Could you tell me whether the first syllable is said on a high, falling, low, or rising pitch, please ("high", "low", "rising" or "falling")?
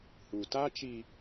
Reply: low